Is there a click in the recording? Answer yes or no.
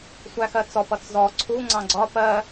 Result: yes